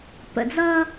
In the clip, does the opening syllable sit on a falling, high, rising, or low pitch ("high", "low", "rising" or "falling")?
low